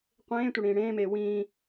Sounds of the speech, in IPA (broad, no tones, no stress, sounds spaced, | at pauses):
qʷ ẽː tʷ ʌ ɽ ĩː ɽ ẽː m eː w ĩː